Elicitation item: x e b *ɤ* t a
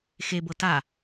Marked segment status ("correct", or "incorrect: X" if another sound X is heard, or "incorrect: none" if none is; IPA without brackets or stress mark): correct